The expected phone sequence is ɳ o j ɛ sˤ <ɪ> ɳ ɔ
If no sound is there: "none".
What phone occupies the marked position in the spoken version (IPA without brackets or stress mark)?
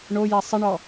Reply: ɪ